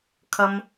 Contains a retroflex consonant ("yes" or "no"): no